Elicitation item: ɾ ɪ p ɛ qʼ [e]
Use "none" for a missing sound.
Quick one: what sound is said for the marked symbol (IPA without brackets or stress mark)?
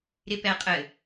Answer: ɘ